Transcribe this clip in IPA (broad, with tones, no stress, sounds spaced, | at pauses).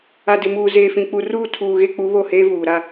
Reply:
a˨ d ɪ˨ m uː˨ z eː˨ f ĩ˨ k͡p u˨ r uː˦˨ tʰ uː˨ ɣ e˦ k͡p u˨˦ β o˦˨ h eː˦ v uː˨ ɾ a˦